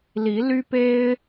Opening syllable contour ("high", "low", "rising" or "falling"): rising